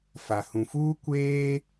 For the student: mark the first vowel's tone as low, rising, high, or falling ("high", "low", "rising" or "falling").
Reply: low